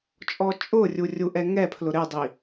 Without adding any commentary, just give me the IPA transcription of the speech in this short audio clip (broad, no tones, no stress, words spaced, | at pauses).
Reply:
t͡ʃʼɔt͡ʃʼʊrʲu rʲuʔɛŋɛpʰlʊ ɾɪdˤi